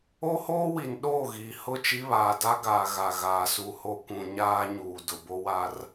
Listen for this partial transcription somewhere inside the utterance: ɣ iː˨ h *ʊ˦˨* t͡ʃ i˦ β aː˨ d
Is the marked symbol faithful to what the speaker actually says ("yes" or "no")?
yes